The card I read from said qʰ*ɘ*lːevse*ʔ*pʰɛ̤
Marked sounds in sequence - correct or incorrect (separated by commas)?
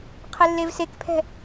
correct, incorrect